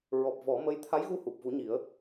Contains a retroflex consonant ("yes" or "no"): no